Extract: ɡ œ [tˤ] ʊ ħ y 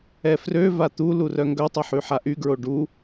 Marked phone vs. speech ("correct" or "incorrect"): correct